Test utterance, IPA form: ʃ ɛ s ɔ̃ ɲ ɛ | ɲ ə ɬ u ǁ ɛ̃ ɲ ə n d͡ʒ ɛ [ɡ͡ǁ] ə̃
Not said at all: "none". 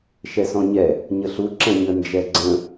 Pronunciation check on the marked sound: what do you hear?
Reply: ɡ͡ǀ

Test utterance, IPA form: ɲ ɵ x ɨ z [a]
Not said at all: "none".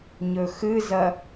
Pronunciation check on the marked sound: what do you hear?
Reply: ɐ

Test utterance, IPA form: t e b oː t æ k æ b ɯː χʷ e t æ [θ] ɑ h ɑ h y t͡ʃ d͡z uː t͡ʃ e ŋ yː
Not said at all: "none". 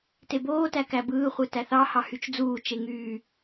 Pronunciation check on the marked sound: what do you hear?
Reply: θ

